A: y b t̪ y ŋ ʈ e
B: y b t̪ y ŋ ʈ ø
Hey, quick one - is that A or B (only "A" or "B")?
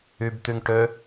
B